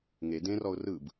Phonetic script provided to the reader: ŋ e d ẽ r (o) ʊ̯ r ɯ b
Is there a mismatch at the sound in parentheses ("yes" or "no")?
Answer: yes